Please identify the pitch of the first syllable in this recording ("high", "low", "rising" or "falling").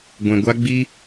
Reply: low